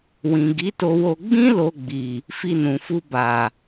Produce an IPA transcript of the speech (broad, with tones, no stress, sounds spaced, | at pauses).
w ĩ˨ ɡ i˨˦ t o˧ w o˧ ɡ͡b ĩ˦ l o˧ ɡ͡b i˨ | f i˧ n ũ˨ f u˧ b a˨